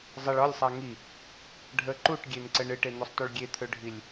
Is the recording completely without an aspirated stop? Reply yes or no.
no